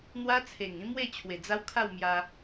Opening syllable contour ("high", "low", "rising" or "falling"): high